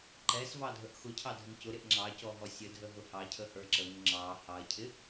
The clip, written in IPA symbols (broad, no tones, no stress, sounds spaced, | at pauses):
ǃ ɛ s v ɑ dʱ ə ʔ x ʊ cʰ ɑ dʱ ʊ ŋ c ʊ ɾ ɪ ʔ ŋ͡ǁ ɑ c ɔ ɦ ɔ sʲ ə dʱ ə ɦ ʊ h ɑ cʰ ə h ə˞ ǁ ə ŋ ʊ ŋ͡ǁ ɑ h ɑ ɐ̯ cʰ ɪ